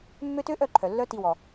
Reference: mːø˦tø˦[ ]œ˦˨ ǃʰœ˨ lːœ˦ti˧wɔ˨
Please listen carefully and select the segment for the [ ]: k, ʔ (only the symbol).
ʔ